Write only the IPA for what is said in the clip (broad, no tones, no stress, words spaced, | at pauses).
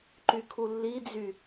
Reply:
ǃykʰulːid͡zy